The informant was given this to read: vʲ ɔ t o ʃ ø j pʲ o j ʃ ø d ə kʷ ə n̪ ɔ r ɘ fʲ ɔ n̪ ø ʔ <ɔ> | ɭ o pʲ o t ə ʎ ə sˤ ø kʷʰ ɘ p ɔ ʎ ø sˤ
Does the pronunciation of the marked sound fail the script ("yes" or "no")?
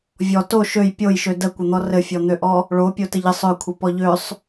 no